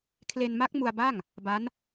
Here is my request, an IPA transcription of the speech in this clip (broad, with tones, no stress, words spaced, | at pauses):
kʰle˧nma˦˥k̚ mu˧a̯ba˥˩ŋ | ba˦˥n